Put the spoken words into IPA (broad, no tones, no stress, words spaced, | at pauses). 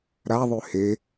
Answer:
ɾaðˤʉ he